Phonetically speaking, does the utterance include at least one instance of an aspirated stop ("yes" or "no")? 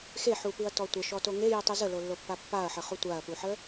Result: no